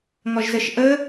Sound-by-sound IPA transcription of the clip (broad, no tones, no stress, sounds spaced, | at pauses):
ŋ ɔ ʒ z ə ʃ ʔ ə